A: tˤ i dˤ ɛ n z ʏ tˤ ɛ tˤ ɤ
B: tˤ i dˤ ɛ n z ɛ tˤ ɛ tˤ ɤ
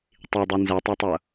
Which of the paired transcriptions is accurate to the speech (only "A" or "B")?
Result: B